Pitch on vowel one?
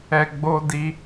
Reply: low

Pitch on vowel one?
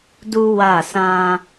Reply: high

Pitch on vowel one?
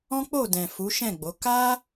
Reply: high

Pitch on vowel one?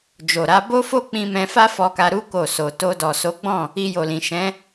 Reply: low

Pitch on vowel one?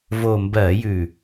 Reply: low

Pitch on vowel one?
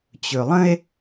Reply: low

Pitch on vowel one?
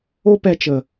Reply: high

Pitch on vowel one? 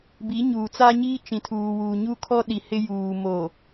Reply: rising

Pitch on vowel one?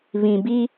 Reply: low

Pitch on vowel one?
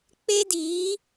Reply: high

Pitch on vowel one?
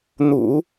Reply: low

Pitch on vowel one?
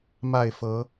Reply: falling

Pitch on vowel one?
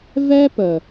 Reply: high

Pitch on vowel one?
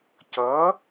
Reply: rising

